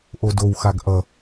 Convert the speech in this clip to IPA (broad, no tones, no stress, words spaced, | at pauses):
ʔodowxaɡ ʔʌ